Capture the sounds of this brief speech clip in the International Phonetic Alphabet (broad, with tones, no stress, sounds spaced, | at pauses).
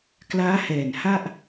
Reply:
k l aː˦˥ h ɛː˨˩ n h a˥˩ ʔ